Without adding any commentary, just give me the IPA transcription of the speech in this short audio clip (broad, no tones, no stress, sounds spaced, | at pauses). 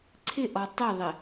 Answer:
ǀʰ ɪ ʔ ɔ tˤ ɪ ðˤ ɪ